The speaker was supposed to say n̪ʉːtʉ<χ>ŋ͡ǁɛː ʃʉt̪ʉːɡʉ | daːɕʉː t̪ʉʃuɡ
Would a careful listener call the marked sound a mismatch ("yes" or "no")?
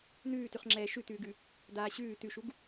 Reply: no